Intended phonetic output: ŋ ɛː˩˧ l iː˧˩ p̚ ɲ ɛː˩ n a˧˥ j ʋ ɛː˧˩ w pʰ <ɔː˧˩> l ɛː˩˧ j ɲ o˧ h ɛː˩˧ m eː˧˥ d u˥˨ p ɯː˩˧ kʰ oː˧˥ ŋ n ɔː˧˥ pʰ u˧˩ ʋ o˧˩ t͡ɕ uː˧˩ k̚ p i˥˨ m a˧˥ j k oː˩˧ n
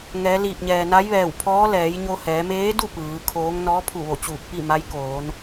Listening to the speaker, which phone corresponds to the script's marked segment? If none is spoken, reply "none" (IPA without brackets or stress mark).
ɔː˧˥